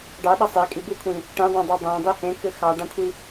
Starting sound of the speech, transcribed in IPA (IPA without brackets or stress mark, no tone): ɖ